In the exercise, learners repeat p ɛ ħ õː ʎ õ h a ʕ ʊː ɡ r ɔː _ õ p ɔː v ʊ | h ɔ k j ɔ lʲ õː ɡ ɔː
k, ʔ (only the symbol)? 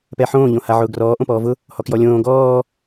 ʔ